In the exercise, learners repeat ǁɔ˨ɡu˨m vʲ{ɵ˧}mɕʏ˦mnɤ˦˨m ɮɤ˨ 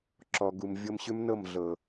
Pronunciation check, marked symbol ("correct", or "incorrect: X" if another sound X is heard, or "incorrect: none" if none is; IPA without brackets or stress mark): incorrect: ɤ˧